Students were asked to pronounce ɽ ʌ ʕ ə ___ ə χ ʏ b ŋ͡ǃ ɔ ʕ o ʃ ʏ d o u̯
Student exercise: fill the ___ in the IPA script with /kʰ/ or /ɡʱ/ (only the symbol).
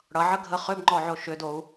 ɡʱ